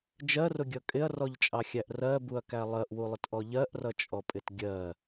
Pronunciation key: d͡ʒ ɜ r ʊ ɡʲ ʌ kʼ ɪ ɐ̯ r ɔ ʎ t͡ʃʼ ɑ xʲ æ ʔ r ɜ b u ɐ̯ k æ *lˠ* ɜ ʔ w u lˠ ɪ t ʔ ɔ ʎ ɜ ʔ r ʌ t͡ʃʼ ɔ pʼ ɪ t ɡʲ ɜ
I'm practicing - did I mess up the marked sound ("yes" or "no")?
no